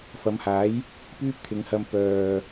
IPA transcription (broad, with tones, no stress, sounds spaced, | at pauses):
f ɐ˨˧ m h aː˨˥ j | p yː˥ p̚ t̪ʰ ɪ˨˧ ŋ h ɐ˧ m p œː˨